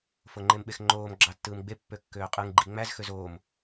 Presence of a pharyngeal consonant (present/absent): absent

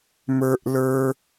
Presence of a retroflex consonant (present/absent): absent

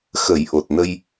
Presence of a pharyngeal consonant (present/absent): absent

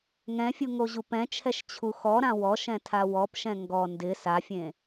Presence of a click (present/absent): absent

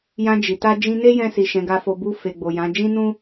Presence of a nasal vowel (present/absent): present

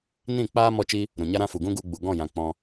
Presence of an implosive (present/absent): absent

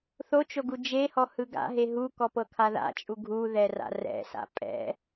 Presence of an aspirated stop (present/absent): present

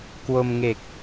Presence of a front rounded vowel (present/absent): absent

